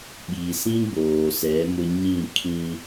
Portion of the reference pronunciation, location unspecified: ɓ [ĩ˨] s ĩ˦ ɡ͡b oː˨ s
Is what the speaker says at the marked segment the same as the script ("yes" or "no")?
no